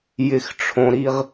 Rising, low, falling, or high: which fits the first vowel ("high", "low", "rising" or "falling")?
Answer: low